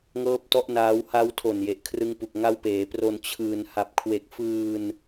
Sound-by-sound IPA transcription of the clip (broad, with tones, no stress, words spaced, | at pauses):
ŋɤː˥˩p̚tɔ˥˩ʔnaː˦˥w ha˦˥wtʰo˨˩n je˨˩ʔkʰrɯ˦˥ŋpu˨˩k̚ ŋa˦˥wpeː˩˦pro˧n t͡ɕʰɯː˧n ha˨˩p̚kʰwe˨˩k̚fɯː˧n